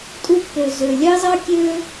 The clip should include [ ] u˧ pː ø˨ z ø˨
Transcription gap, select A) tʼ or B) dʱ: A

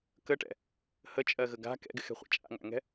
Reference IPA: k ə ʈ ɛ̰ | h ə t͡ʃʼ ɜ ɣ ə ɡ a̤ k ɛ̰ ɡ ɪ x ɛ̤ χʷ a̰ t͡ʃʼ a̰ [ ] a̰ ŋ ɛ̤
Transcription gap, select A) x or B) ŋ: B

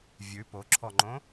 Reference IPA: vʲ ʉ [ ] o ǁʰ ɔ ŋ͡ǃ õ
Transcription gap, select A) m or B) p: B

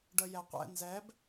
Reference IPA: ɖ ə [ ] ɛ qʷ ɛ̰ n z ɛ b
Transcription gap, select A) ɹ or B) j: B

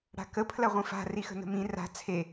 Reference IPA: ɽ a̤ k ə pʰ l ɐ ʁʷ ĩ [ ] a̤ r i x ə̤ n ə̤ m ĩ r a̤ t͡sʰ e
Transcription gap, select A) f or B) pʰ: A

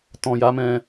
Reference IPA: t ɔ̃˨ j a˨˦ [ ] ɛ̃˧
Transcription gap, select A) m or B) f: A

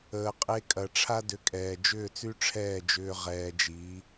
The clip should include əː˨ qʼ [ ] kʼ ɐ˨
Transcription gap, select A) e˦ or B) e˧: B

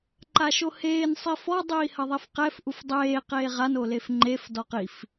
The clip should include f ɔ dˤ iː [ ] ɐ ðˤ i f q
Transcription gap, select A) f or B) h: B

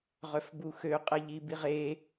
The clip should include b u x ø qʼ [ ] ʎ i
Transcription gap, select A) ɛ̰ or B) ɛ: B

